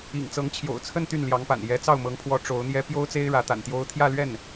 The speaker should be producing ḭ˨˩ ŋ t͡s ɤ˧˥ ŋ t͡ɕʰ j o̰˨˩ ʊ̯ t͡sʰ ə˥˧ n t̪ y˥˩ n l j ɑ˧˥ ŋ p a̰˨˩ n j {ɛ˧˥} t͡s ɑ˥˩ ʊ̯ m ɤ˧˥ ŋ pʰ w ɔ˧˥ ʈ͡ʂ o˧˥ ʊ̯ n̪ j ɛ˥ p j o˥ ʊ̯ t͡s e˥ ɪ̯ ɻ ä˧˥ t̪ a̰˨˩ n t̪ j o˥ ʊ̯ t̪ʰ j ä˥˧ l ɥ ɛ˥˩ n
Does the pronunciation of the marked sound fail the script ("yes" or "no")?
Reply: no